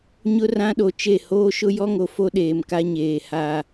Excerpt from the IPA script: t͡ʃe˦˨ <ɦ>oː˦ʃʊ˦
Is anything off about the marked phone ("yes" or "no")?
yes